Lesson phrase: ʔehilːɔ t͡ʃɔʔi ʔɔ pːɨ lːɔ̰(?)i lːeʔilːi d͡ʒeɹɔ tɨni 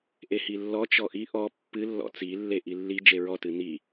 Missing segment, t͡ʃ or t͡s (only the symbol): t͡s